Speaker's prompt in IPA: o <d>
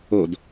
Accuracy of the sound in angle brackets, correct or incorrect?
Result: correct